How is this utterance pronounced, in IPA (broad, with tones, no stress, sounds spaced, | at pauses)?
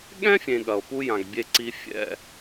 ɠ ɛ̃˥ fʲ ẽ˨ ɠ ɐ˨ o̯ p u˥ j ã˨ ɡ bʲ e˥ ǀ i˥ fʲ ɛ̰˥